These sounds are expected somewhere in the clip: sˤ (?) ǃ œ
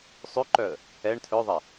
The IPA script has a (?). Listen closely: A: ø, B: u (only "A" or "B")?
A